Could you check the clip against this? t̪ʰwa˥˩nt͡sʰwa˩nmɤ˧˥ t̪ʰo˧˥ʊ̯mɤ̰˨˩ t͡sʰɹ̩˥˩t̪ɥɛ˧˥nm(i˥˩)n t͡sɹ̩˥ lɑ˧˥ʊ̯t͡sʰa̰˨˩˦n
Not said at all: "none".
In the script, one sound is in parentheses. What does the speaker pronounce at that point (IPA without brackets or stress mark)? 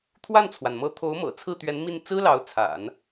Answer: i˥˩